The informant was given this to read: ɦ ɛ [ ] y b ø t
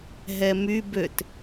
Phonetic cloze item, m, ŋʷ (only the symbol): m